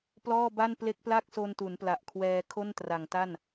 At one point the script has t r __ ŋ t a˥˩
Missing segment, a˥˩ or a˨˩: a˨˩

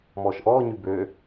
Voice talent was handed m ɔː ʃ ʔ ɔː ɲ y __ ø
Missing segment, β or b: b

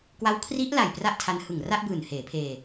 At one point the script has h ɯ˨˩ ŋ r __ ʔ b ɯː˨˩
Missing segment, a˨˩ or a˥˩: a˥˩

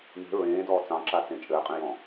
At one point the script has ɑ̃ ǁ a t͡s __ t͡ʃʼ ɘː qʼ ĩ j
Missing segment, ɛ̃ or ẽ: ẽ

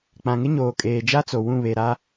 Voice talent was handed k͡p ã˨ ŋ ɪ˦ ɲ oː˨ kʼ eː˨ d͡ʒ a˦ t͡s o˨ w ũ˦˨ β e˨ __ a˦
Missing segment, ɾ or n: ɾ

